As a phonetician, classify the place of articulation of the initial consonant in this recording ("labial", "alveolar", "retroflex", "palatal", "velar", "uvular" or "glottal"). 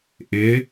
glottal